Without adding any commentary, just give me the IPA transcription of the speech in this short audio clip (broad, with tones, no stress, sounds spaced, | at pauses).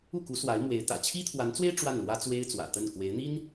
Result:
u˥˩ k u˧˥ s w a˧˥ ɪ̯ m w e˧˥ ɪ̯ t̪ ä̰˨˩ t͡ɕʰ i˥ t̪ʰ w a˧˥ n t͡s w e˥ ɪ̯ ʈ͡ʂ w a˥˩ n l w ä˥ t͡s w e˥ ɪ̯ t͡s w ä̰˨˩ t̪ ə˥˩ n k w e˧˥ ɪ̯ n̪ i˥ n